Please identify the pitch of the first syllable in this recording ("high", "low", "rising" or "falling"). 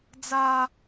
high